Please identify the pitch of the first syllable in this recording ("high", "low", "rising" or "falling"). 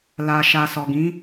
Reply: low